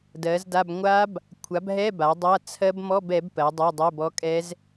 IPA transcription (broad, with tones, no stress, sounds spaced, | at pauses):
d ɜ˩˥ z d a˧˥˧ b ŋʷ a˦˥ b | kʷʰ a˩˥ b ɦ ɛ˧˥˧ b a˩˥ dˤ a˧˥˧ t͡sʰ ɜ˦˥ b m ɔ˧˥˧ b ɛ˩˥ b p ɜ˩˥ dˤ ɜ˧˥˧ dˤ ɛ˧˥˧ b ɔ˦˥ kʼ ɛ˦˥ z